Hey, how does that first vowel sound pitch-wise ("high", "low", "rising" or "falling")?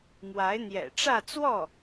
rising